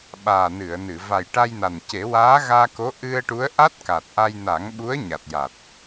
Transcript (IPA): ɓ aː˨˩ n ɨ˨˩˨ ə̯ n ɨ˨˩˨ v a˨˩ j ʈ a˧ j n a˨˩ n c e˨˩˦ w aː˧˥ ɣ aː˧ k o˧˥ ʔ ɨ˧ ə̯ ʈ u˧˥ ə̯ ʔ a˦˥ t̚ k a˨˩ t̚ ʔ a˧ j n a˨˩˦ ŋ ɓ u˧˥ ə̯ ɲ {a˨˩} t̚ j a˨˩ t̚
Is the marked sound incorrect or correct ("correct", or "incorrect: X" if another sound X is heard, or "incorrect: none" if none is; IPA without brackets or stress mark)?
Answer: correct